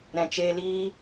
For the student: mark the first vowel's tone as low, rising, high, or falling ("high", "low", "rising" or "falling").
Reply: low